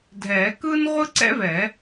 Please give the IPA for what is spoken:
dʱ ɛː˨˩˦ k ɯː˥ n ʁʷ ɯ˥ ǀ ɛ̰˥ v ɛ˨˩˦

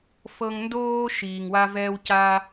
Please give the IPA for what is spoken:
f ɤ˦ ŋ n d oː˥ ʃ iː˨ ŋ w a˥ v ɛː˥ w c a˥

